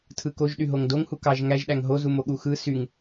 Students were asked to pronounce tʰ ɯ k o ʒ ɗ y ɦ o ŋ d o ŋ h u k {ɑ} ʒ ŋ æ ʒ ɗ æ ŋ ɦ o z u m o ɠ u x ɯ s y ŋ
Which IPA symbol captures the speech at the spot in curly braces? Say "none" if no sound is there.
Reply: ɑ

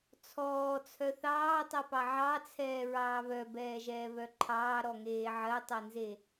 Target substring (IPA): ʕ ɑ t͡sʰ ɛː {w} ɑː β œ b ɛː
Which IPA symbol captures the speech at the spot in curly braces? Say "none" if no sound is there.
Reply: ɹ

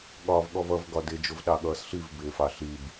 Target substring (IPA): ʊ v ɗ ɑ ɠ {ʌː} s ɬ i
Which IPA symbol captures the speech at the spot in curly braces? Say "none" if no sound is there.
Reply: ʌː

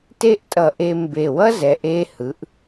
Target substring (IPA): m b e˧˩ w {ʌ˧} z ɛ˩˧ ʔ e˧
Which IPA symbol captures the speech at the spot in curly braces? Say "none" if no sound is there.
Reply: ʌ˥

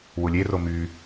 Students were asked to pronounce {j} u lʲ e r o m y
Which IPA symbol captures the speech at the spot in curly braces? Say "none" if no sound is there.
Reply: w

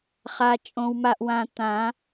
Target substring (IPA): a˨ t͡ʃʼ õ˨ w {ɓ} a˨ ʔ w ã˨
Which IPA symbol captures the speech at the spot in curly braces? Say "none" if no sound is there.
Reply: m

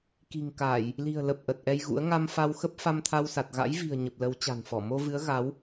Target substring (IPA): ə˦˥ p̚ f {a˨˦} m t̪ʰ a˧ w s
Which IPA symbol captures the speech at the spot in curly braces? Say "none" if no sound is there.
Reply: a˧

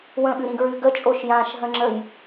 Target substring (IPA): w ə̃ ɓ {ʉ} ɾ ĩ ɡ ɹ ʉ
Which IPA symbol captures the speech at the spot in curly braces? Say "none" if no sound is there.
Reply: ʉ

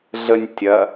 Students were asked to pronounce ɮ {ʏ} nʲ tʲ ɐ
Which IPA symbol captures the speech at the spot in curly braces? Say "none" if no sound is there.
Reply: ə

